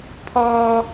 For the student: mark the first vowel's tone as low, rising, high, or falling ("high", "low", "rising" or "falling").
high